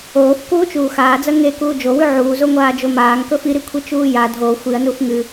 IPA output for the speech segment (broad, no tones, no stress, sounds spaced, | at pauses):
oː f k uː t͡ʃ uː x aː d͡z ɐ ŋ e k uː d͡ʒ o w ʉ ʕ uː z o ŋʷ aː d͡ʒ o m aː ŋ k ɵ f i ɾ i kʷʰ i t͡ʃ uː j a dʱ o xʷ i ɐ̯ n u f ŋ ɨ